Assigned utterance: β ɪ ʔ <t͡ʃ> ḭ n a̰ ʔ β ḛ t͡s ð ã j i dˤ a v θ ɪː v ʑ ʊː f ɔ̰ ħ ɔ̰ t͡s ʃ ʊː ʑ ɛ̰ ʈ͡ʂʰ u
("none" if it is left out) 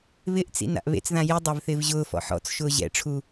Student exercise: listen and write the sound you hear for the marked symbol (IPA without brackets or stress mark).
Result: t͡s